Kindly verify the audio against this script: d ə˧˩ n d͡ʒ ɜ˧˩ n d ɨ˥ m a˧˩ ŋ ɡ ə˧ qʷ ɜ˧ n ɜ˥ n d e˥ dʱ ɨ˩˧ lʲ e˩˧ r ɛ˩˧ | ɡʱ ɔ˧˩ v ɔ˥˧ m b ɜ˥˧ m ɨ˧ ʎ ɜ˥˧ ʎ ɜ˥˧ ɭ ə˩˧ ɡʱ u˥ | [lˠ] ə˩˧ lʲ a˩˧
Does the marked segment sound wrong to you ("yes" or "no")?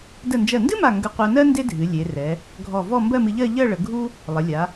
no